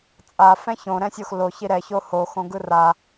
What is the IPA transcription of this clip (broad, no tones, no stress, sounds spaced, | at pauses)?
t͡sʼ a f ɛ̃ ç õ ɾ ɛ̃ sʲ o x l o ç i ɾ ɛ ç o h o x õ ɡ ɯ r a